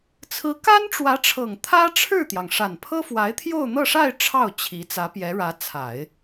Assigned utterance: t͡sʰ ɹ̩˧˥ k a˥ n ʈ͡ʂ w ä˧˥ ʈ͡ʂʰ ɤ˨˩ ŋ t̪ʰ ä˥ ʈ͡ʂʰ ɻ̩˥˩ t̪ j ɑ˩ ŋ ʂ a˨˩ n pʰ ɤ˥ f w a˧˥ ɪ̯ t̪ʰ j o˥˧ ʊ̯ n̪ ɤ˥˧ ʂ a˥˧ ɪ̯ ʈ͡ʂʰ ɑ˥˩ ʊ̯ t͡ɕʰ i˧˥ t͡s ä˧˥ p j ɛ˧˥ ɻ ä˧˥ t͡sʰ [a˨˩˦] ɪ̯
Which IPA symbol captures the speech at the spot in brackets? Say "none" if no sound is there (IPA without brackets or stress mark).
a˨˩˦